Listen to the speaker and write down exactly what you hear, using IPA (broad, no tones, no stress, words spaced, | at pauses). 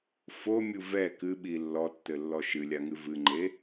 fomʲu vɛ kɨɓi lːɔtːɘlːɔ ʃɨlʲaŋɨ vɨŋ͡ǃe